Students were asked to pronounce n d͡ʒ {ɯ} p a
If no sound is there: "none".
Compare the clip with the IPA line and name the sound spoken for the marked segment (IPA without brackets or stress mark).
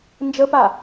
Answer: ə